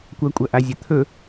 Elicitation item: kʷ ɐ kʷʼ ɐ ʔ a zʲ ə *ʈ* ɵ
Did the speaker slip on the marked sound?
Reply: yes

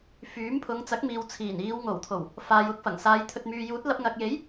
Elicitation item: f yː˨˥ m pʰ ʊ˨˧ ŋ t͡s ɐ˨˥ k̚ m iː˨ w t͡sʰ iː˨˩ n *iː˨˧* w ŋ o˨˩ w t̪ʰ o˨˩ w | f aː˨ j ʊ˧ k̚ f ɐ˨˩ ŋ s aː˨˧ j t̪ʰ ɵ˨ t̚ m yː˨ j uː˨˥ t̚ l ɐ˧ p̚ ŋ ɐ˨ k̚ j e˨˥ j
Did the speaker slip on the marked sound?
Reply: no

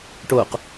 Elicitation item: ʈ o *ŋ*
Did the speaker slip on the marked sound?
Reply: yes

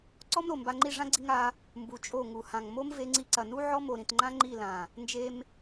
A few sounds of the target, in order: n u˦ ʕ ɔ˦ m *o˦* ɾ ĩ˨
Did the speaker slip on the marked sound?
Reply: yes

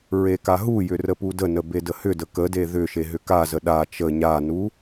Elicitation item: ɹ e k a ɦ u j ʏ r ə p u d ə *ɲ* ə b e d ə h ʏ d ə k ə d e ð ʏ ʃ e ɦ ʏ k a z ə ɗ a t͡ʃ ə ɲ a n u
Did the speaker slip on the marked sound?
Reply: yes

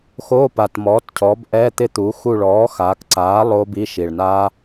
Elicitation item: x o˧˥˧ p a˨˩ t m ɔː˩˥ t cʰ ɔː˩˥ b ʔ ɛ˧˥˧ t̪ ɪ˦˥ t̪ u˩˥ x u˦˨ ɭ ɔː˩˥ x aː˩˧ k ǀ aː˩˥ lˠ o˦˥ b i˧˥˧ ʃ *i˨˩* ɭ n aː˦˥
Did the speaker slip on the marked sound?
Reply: no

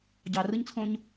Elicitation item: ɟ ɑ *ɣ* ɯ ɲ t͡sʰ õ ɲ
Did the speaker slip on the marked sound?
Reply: yes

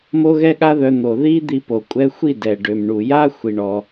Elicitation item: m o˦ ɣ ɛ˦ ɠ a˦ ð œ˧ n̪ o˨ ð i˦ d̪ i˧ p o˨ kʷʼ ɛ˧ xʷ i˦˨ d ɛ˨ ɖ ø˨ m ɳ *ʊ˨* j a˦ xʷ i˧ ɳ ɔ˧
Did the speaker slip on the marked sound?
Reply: yes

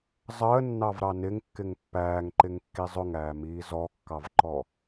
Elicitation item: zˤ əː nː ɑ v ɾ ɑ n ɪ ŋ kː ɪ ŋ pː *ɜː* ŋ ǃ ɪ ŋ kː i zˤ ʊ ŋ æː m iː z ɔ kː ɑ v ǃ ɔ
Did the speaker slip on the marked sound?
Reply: yes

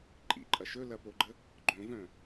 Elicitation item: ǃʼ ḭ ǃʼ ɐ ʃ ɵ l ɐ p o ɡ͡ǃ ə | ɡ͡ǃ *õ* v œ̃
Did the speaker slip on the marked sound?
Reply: no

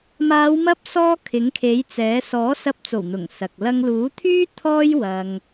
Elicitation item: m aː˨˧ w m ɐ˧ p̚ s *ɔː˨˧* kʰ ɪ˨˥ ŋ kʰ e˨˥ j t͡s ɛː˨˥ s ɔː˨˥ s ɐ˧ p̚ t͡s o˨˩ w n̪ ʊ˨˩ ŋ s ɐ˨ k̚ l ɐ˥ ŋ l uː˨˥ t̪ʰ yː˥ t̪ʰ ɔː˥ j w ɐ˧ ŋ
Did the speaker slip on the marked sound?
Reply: yes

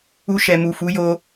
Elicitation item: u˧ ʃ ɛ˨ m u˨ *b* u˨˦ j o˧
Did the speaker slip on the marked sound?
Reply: yes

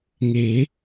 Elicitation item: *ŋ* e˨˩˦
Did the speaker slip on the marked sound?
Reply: no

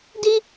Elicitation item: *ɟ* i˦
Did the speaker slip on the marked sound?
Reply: yes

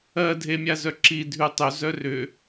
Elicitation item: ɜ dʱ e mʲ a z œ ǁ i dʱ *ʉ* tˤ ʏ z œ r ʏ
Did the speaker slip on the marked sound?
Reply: no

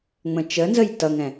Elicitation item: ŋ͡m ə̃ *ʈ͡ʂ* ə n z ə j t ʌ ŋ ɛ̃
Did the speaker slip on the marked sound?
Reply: yes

